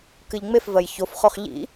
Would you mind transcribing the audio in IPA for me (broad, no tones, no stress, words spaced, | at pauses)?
kɨʎŋ͡mefvɜj çofχoχ ʎḭ